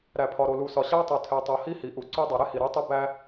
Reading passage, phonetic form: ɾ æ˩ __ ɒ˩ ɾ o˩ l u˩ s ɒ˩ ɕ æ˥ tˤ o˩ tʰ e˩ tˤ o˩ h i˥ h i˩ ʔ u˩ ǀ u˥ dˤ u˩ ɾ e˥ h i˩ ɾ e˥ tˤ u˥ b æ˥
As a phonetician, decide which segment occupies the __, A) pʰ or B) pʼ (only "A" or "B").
A